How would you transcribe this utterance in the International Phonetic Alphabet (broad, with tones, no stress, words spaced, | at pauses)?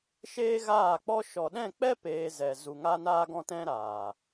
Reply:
ʃeː˦ɣaː˦˨k͡pɔ˦ ʃɔ˨ɗɛ̃˦˨k͡pɛ˦ peː˧zɛ˨ zu˨ŋa˦naː˦ ɡɔ̃˦tɛ̃˦ɾaː˨